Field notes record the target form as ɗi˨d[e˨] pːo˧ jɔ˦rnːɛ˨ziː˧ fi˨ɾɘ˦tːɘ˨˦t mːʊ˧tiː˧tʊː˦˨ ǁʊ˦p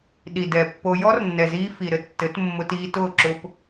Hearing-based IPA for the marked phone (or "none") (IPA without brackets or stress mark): ɛ˨